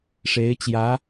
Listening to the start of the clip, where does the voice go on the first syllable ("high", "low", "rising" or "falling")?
rising